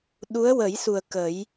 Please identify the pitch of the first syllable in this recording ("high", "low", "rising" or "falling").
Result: rising